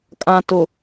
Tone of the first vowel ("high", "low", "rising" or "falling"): low